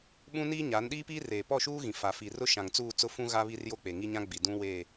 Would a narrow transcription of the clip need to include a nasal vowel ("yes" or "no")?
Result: yes